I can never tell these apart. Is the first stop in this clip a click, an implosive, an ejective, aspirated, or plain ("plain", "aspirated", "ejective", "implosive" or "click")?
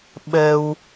implosive